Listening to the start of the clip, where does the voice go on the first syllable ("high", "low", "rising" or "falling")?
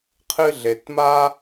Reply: high